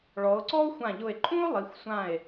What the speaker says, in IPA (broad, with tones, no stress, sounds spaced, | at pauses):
ɭ ɔ˩˧ o̯ ǀ ɔ˥ o̯ xʷ ã˧˩ ʎ ʊ˧˩ e̯ ǃʼ ũ˥ o̯ lˠ i˩˧ xʷ sʷ ã˧˩ e̯